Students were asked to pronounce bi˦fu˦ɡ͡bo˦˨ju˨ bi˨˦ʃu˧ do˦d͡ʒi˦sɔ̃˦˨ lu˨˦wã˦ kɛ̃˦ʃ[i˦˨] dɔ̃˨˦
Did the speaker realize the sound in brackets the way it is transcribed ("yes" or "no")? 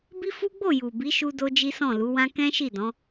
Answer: yes